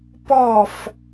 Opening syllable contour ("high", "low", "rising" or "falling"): falling